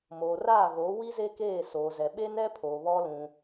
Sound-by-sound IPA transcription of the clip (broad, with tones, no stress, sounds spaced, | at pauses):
m o˨ r aː˦˨ ɣ o˨˦ w i˦ z e˦ k eː˦˨ s o˨ z ɛ˨ ɓ e˦ n ɛ˦ pʰ o˨ β ɔ˦ l ũ˦